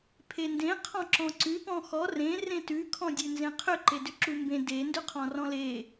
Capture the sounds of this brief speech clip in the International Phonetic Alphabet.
pʰ e n d ẽ qʰ ɔ̃ ǁ ɔ̃ ǀ ʉ p ɔ̃ x ɔ r ẽ r ẽ t ʉ kʰ ɔ̃ dʲ ʉ n z ẽ qʰ ʏ ǃ e d ʏ ǁ u m b ẽ d e n d ʏ qʰ ɔ̃ r ɔ̃ l e

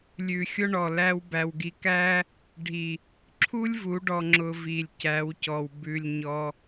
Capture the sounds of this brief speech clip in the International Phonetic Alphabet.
lʲ ʉ˨ xʲ ʊ˦ ɳ ɔ˨ l æ˦ w b æ˧ w ɡ i˧ k æ˦ | ɖʱ i˨ | ǁʰ u˦ lʲ v u˨˦ ɖ ɔ˧ ŋ͡ǁ ʊ˧ v i˨ lʲ c æ˨˦ w c ɔ˨ w b ʉ˨ lʲ ɲ ɔ˧

